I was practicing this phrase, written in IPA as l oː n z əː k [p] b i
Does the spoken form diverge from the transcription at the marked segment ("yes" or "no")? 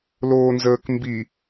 yes